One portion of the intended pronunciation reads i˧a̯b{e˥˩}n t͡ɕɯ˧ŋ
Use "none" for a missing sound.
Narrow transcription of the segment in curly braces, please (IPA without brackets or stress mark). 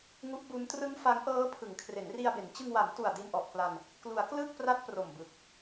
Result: e˩˦